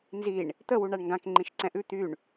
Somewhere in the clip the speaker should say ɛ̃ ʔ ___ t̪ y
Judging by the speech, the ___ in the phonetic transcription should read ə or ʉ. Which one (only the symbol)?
ʉ